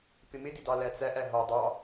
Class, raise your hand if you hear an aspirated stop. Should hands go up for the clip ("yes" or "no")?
no